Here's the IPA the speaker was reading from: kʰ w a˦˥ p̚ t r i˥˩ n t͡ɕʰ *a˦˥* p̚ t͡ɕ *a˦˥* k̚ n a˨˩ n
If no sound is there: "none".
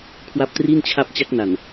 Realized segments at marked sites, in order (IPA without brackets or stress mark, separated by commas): a˦˥, a˦˥